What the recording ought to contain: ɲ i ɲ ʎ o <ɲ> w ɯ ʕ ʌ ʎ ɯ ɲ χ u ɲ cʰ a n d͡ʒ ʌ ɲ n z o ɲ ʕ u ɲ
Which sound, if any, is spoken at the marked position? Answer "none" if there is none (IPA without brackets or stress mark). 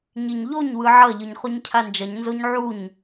ɲ